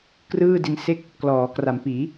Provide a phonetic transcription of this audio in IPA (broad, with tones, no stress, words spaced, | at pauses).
krɯː˥˩di˧nse˥˩k̚ | klɔː˩˦kra˩˦mpiː˩˦